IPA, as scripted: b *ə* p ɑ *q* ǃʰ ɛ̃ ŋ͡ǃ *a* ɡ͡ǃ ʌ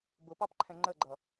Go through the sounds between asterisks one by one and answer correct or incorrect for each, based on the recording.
incorrect: ʊ, incorrect: p, incorrect: ə

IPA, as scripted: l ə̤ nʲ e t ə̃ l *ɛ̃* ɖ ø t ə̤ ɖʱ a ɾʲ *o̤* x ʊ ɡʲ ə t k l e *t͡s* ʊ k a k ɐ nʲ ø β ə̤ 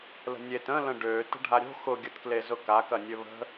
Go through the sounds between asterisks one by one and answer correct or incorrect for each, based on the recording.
incorrect: ə̃, correct, incorrect: z

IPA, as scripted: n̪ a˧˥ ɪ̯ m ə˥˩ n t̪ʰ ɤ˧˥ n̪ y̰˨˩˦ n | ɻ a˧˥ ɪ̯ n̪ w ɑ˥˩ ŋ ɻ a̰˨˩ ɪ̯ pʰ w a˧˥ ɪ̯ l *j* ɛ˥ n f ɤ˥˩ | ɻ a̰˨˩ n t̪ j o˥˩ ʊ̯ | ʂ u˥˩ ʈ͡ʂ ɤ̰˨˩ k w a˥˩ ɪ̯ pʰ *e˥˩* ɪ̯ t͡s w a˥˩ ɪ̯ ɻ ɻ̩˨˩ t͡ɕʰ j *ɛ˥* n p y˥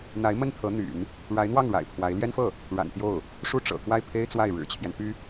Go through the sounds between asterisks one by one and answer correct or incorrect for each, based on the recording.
correct, incorrect: e˥, incorrect: ɛ˦

